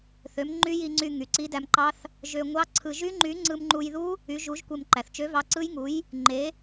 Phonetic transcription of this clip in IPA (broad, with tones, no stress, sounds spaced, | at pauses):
θ ø˨˥ m ŋ͡ǃ y˦˥ j i˧ ŋ͡ǀ y˧ ŋ y˩ ǀ i˨˥ d æ˧ m ǃ ɑ˦˥ θ | ʒ ø˧ ŋʷ ɑ˦˥ ǀʰ ɯ˧ ʒ y˦˥ ŋ͡ǃ y˨˥ ŋ͡ǀ ɯ˧ m ŋ͡ǃ u˧ j ð u˦˥ | y˨˥ ʒ u˨˥ ʒ kʷ e˧ m ǃ æ˩ θ t͡ʃ ø˨˥ v ɑ˨˥ ǀ ɯ˦˥ j ŋ u˨˥ j | ŋ͡ǃ e˨˥